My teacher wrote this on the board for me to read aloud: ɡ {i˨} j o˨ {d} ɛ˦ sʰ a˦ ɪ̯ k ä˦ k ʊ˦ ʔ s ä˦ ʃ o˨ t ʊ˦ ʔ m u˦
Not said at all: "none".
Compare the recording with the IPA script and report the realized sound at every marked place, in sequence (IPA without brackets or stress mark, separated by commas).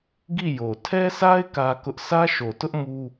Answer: i˦˨, tʰ